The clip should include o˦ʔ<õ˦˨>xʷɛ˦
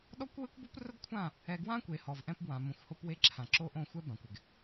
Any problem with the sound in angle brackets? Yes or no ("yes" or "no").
no